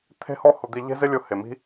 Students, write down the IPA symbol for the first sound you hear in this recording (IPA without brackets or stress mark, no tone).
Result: t̪ʰ